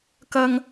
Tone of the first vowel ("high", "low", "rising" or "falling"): high